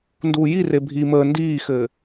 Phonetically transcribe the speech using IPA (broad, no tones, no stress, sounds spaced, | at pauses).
n d uː j i r e bʱ i m əː n d iː x ɘː